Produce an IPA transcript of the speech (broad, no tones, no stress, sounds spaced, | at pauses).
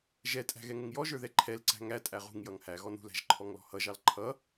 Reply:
ʒ ɛ tʼ æ̤ ɣ ɛ ŋ ʊ ŋ j ɔ ʒ ə˞ ð ɛ ǃʰ ɛ l ǀ æ̤ ŋ æ tʼ æ ʁ ṳ ŋ j ʌ ŋ h æ ɣ ɔ n ṳ l æ̤ ʒ ǃʰ ɔ ŋ l ɔ̤ h ʌ ʒ ɑ l ǃʰ ʌ